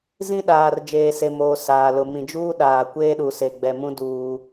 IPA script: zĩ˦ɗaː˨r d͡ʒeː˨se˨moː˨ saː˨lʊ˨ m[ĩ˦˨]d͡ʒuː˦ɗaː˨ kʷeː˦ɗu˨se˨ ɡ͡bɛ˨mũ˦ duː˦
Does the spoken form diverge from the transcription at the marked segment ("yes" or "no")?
yes